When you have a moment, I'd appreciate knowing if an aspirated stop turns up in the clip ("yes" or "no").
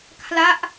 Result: yes